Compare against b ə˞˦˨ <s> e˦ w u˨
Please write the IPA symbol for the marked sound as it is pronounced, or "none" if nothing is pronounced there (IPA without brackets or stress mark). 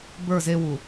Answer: z